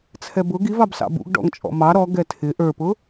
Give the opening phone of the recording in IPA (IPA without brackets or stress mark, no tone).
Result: t͡sʰ